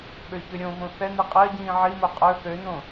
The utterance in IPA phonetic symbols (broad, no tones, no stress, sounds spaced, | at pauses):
ɓ ø ç ø ɾʲ õ v õ θ ɛ n i qʼ ɜ ɟ ĩː ʕ i m o qʼ ə˞ θ ø n õ